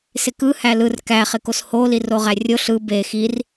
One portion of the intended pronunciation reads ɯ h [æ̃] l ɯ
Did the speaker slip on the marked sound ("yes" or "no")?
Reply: yes